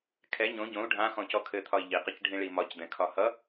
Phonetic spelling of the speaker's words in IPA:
kʰɛ ɲõ ɟõu̯ ɖʱã xɔ̃cɔkʰɘt̪ʰɒi̯ ʎiqʌc ɖʱĩɭimɒcd̪ɛ̃ kʰɒhʌ

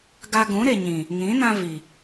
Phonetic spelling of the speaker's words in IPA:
ɡa˧ɡũ˨˦ɾe˨ɲĩ˨ | ŋĩ˨˦nã˧ vi˨

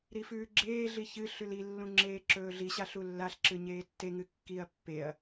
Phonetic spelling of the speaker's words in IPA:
ɾifʉːɡ͡ǁeːɮi çɨ ɬʉlilːũ ŋ͡ǁeːǁɵːɮiɕaɬ ulːaɬǁɨ ɲeːtːeŋɨ kːiɐ̯ pːeɐ̯

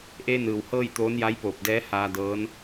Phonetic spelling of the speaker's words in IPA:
ʔeː˧nɯː˩w hɤː˥˨jt̪oː˧˥nja˧˥jpoː˧˩p̚ dɛː˧˥haː˧dɤː˧˥n

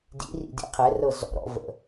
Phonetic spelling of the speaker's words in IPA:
dḭrḭ dḭqʰɛrɤ zɔ̰ɾɔ̰ və̰

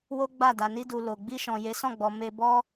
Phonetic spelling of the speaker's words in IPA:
wo˦ɡ͡ba˦˨ da˨ni˧du˨ lo˨ ɡ͡bi˧ʃɔ̃˨ je˨˦sɔ̃˦˨ɡ͡bɔ˨ me˧bɔ˦

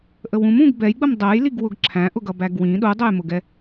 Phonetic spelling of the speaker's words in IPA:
ʔəwũm ũɡ bɛjɡ͡bəm dˤɜjliɡ wʊɡǁʰæ̃ʔʊɡʌ bæɡwĩ ɗudˤəjmʊɡɛ

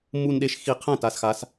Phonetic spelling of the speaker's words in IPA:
mu˨˩nɗe˩˧ʃ xi˨˩ qʰɛ̃˥˨ta˩˧sxa˩˧s

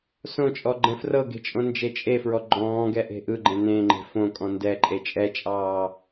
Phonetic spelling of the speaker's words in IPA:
sõt͡ʃʼɔɡ͡ǃɛ̃ frɤɡe̤t͡ʃʼõnd͡ʒe t͡ʃʼefɹɔ ɡ͡ǃɔ̃ːɡɛʔe̤ ʔɯɡ͡ǃẽ nẽŋ͡ǃe̤ fõkʼɔ̃ ndɛǃʼe t͡ʃʼɛt͡ʃʼɑː

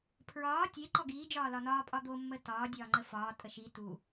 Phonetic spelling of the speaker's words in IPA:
pʰɹɒː tʲe ǃɔɡiː d͡ʒɒːlɒnɒː pʼɒd̪o mːətɒː dʲɒːŋ͡ǃəfɒː tʼəʃi tu

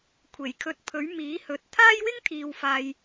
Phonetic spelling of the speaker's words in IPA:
kʷʰe˨˩jkʰɵ˧t̚ pʰɵ˨˥ɥmiː˨˥hɵ˨t̚ t̪ʰaː˥jwɪ˥ŋt̪ʰiː˨w faː˨j

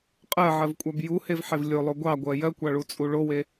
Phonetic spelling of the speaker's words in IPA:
qʼɜʕɜvkʷʼab juhevħev lʲolˠo ɡʷɑɡʷɜ jɜkʷɑɭut͡sʼu ɭowe

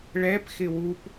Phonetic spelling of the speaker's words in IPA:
ɭɛpxɪ wup

